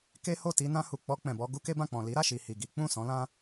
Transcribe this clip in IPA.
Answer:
k e˦ h o˦˨ t i˧ n ã˧ h u˨ k͡p ɔ˧ k͡p ɛ̃˨ b ɔ˧ ɡ u˦ k e˦ b ã˦˨ k͡p ɔ̃˨ l i˨˦ ɾ a˦˨ ʃ i˨ h i˨ ɡ i˨˦ k͡p ũ˦˨ s ɔ̃˨˦ l ã˦

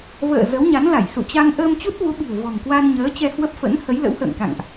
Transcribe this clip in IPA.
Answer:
v ə̰ː˧˨ z ə˨˦ w ɲ a˨˦ n l a˧˩ j s ṵ˧˨ t͡ɕ a˧ ŋ ʔ əː˧ m t͡ɕ u˦˥ t̚ v u˨˦ ɓ i̤˨˩ ə̯ v ɔ̤˨˩ ŋ k w a˧ n ɲ əː˨˦ t͡ɕ ɛ˧ h w ə˦˥ p̚ f ə̰˧˥ n h ə˨˦ j l ə̰˧˥ w h ə̰ː˧˨ ŋ k a̰˧˨ ŋ ʔ

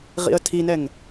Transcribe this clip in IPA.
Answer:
ʁ ḭ ə̯ tʰ i n ɛ ŋ

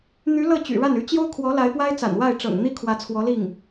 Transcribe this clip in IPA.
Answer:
n̪ y˧˥ l ɤ˥˩ t͡ɕ y̰˨˩ ɻ a˥˩ n y˧˥ t͡ɕ j o˥ ʊ̯ kʰ w ɔ˧˥ l a˧˥ ɪ̯ p w a˥ ɪ̯ t͡s a̰˨˩ n w a˥˩ ɪ̯ ʈ͡ʂ ɤ̰˨˩ ŋ n̪ i˥ kʰ w ä˧˥ t͡sʰ w ɔ˧˥ l i˥˩ ŋ

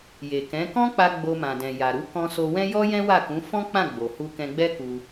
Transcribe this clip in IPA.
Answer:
j e˨ k ɛ̃˨˦ k ɔ̃˦ k͡p a˧ ɡ͡b o˧ m ã˨ d ɛ̃˨ j a˨ ɾ u˨˦ k ɔ̃˧ s o˧ w ɛ̃˦ j ɔ˦ j ɛ̃˦ w a˦˨ k ũ˨˦ f ɔ̃˦ k͡p ã˦˨ ɡ͡b o˨ h u˧ k ɛ̃˧ ɡ͡b ɛ˦ k u˧

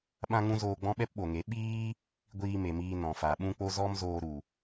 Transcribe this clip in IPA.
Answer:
ɓ ã˦ ŋ ũ˦ z oː˧ ɡ͡b ɔ̃˦ ɓ ɛ˦ p ɓ o˨ ŋ e˨˦ ɓ iː˦ | ɡʷ iː˧ m e˨ m iː˧ n ɔ̃˨ f a˨ ɓ ũ˦ k͡p o˦ z ɔ˦ m z oː˧ ɾ u˨

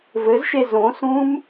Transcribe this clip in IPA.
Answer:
v ɘ z ʃ e z õ s ũ m

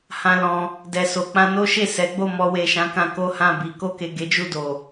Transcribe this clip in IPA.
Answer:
h ã˧ l ɔ̃˧ | d ɛ˨ s o˨ k͡p ã˧ n o˦ ʃ e˦˨ s ɛ˨˦ ɡ͡b o˦˨ m ɔ˧ w e˨ ʃ ã˨˦ k ã˧ k o˦ h ã˦˨ b i˧ k o˧ k e˨ ɡ e˨˦ d͡ʒ u˦˨ d o˨

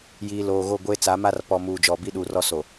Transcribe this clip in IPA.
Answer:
j iː˨ l oː˨ ɣ o˦˨ ɡʷ eː˦ t͡s a˨˦ m a˦ r p ɔ˨ m uː˨ d͡ʒ ɔ˨ b i˦ ɗ uː˨ r ɔ˦ s o˨

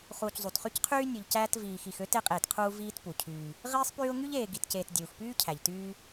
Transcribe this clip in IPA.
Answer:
χ uː˨ c zˤ u˩ t χ y˥ c qʰ yː˥ nʲ u˨ ʎ c æː˥ t v iː˨ x i˨ x ø˥ t e˦ qʼ eː˨ t qʰ uː˦ v iː˥ t p u˩ cʰ yː˨ | ʁ iː˦ sˤ p yː˦ ʊ̯ ŋ y˥ ʎ eː˨ ɡ i˨ t c eː˨ t dʲ uː˩ x p yː˥ cʰ æ˩ ʎ t yː˦

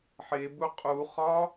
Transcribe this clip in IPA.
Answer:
ħ e b u qʼ u χ ɒ

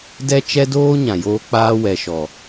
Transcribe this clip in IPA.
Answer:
d ɛ˦ t͡ʃ ɛ˦ d oː˦ ɲ ã˨ j oː˦ k͡p aː˦ w ɛ˨ ʃ ɔ˨

